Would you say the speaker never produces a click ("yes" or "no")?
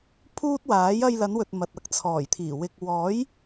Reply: yes